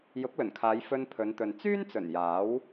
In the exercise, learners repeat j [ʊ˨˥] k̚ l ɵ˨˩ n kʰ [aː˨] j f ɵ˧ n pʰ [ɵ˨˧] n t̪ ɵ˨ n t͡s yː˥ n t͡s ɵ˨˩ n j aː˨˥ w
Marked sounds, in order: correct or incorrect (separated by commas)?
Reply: correct, incorrect, correct